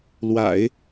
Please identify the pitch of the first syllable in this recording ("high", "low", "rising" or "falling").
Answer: low